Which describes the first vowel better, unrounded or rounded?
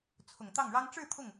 rounded